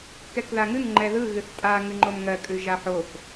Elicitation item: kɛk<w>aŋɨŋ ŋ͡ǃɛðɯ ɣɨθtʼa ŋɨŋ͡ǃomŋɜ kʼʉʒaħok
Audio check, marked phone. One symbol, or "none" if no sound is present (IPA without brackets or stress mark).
ð